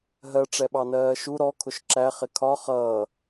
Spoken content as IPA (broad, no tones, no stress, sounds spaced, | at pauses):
ɦ ɜ ʈ͡ʂ ɛ ɓ ɑ n ɜː ʃ u ɾ ɔ kʰ ʊ ʃ ǁ æ χ ɪ kʰ ɒ χ ʌː